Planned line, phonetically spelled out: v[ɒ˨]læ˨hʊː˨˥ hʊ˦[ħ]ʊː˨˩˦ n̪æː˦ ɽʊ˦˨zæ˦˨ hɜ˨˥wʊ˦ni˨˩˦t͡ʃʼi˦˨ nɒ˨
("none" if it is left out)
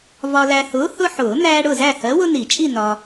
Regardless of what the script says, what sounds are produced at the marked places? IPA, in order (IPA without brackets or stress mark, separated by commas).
ɒ˨, ħ